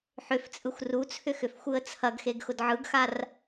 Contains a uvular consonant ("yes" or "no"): no